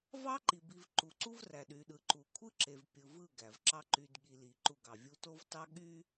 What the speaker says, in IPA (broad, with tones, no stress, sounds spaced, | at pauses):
v ɑ˦ ǃ i˨ b i˨ v ǃ u˨ ǀ u˦ v r æ˨ ɗ y˨ ɗ ɯ˨ ǃ u˨ kʷʰ ɯ˦ ǁ e˨ v pʲ ɯ˨ v ɯ˦˨ ɡ æ˨ v ǁ ɑ˦ ǃ y˨ d ɠ i˨ l i˨ ǃ u˦˨ ɡ ɑ˨ vʲ u˦ t o˦ v t ɑ˦ ɠ y˦